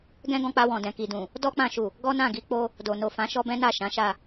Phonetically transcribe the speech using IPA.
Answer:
ɡɛ̃˦ɡɔ̃˧k͡pa˧ wɔ̃˨dɛ̃˨ki˨dũ˨ | dɔ˦k͡pã˧ʃu˨ | ɡɔ˦nã˦˨ɡi˨˦ k͡po˦ | do˨no˨ fã˨˦ʃɔ˦bɛ̃˦na˦˨ ʃã˨˦ʃa˦˨

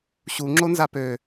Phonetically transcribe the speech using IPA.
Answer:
ɕu ŋ͡ǁonzapø

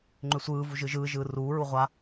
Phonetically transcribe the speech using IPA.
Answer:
ŋ͡ǃʏsʷɯːvu ʒɯʒɯːʒɯː ruːɹu ʁʷa

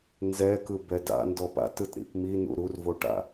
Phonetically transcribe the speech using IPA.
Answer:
nzɛkɯ bɛda̰ ndɔpa̰t ɯtɾḭpmi nṵɾurvoʈa̰

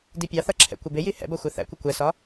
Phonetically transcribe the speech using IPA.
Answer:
dipʲɑθʌ ǁʰɛ̰kʷɪbɪji hɛ̰bʌ xʷɛθæ̰kʷɪ kʷɛsɒ

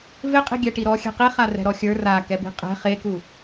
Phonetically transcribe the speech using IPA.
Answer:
vɪqʼi̤ ɡʲɛʈiɾɔ xʲɛ̤qiχa rɛ̤ɾɔxʲə˞ rakɛbi̤ qʼɛ̤ χeku

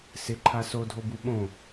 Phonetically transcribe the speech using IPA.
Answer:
sɪǃʰa sodʱobu ɓõ

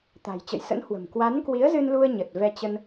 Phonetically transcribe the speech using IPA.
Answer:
t̪a̤˨˩jt͡ɕə̰˧˨jsə̰˧˥nhwə̤˨˩m kwa˨˦nkwi˨˦ə̯zɨ˧nlu˧ə̯ ɲə˨˩t̚ vɛ˧t͡ɕə˧n

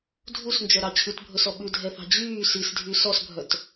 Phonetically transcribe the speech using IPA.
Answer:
dʱusnd͡ʒœɾɑ t͡ɕʰʉtbʱɵsɔ ɓʉdʱɛθɑ̤ d͡ʑyː sisdʱy sɔsbʱœt

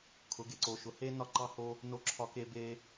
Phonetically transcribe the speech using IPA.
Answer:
kʰʊ˩˧ɡe˩˧ǀo˩˧ʃʊ˩˧ he˧ nɒ˧ǃɑ˧ho˧ | no˧ǁʰɒ˧ke˧ be˧

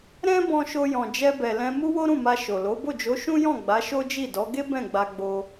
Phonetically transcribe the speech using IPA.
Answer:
ɾɛ̃˦ bɔ̃˧ʃo˧ jɔ̃˨ d͡ʒɛ˧bɛ˨lɛ̃˧ mu˦wo˦ɾũ˦˨ma˧ ʃo˨lo˨˦ bo˦˨d͡ʒo˨˦ʃũ˦jɔ̃˦˨ ɡ͡ba˨˦ ʃo˦d͡ʒi˦˨dɔ˨˦ ɡe˦ bɛ̃˦˨ɡ͡ba˧ ɡ͡bo˧

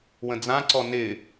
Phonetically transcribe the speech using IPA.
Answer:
wə̃d͡zãǀɔ nɪ

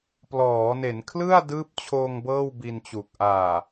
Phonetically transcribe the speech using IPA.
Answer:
plɔː˩˦ne˩˦n kʰlɯ˥˩a̯ dɯː˦˥p̚t͡ɕʰoː˧ŋ bɤː˥˩wbi˧nt͡ɕu˨˩k̚ ʔaː˨˩

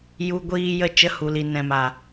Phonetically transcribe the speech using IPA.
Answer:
ju˧ɡʷiː˧ jə˧ t͡ʃə˨˦hu˨li˨ nɛ̃˨ma˨

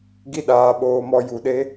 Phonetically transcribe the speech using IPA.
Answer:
ɡi˦ɗaː˨˦ɓoː˧mɔ˧ ju˨ɗe˦

